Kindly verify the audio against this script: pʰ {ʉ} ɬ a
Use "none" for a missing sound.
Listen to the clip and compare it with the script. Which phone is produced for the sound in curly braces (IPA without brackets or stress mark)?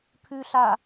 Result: ʉ